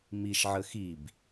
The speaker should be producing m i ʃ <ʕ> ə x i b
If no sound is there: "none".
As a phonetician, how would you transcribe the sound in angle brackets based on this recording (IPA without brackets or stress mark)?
ʕ